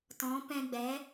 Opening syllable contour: rising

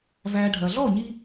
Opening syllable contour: low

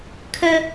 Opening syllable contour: high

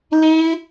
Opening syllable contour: high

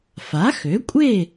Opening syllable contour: rising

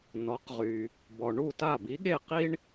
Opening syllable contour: rising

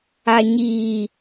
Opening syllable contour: low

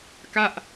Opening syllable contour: falling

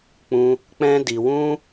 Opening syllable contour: high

